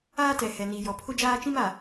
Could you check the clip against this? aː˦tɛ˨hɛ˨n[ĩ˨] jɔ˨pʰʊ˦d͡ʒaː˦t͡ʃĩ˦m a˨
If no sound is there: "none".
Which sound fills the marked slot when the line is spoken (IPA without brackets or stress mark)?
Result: i˨